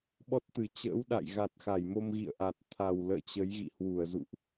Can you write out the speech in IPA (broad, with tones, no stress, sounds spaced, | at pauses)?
ɓ ɔ˦˥ t̚ t̪ ɨ˨˩ t͡ɕ ə̰ː˧˥ w ɗ a̰˧˨ j ɣ a˨˩ t̚ x a˧˩ j m o˧ m ɣ ḭ˧˨ ə̯ ʔ a˨˩ t̚ t̪ʰ a˨˩ w l ə̰ː˧˨ t͡ɕ ə˨˦ j ɣ ḭ˧˨ h w u˧˩ ə̯ z ṵ˧˨ ʔ